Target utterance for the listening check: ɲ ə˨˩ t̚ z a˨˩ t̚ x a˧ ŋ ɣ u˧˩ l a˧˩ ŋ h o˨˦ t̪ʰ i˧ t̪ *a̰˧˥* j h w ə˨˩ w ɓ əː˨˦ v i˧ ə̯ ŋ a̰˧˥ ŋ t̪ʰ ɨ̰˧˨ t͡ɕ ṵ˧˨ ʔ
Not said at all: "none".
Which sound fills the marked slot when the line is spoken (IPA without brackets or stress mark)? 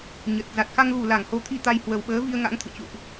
a˧